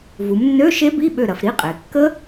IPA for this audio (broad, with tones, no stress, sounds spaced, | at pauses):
v u˩˧ m nː ø˧˥˧ ʃ e˦˥ b i˧˥˧ ɓ ø˧˩ ɾ ɐ˩˧ f ɾ i˧˥˧ qʼ e˩˧ kː ə˦˥